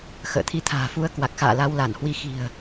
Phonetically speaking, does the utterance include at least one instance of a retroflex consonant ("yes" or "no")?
no